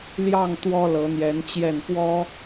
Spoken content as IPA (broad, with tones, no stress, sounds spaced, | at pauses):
l j ɑ˥˩ ŋ t̪ w ɔ˥ l ɤ˧˥ n̪ j ɛ˧˥ n t͡ɕ j ɛ˥˩ n p w ɔ˥